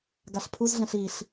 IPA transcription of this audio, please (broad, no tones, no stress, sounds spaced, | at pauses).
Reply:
ɡ a ɬ pʰ u z ɮ ɛ̃ ɬ i ɬ